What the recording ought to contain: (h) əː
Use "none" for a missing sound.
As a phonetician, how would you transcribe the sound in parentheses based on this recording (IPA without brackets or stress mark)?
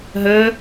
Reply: ɦ